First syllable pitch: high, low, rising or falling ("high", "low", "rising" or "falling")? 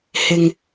low